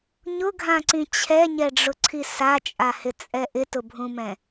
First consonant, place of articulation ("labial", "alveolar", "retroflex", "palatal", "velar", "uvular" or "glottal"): palatal